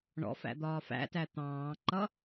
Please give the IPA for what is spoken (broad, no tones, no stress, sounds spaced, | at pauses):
ɳ ɔ̰ f æ̰ d̪ ɒː f æ̰ t æ t̪ ɑ̃ː ǃ ʌ